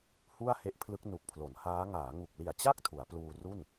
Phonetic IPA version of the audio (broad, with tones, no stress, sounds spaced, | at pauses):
h u˥˩ a̯ h e˦˥ ʔ pʰ l ɯ˦˥ k̚ n u˨˩ k̚ pʰ l o˩˦ n h aː˦˥ ŋ aː˩˦ ŋ u˨˩ k̚ l i˨˩ a̯ t͡ɕ a˥˩ k̚ tʰ u˩˦ a̯ p l uː˧ r u˥˩ n